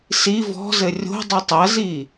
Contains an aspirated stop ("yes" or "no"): no